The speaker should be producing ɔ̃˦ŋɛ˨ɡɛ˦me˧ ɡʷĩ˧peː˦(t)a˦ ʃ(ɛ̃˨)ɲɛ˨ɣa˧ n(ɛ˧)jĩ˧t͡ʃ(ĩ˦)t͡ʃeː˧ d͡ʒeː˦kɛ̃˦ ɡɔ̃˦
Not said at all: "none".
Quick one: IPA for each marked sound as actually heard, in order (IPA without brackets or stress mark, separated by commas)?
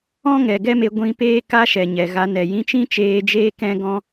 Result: k, ɛ˨, ɛ˨, ĩ˦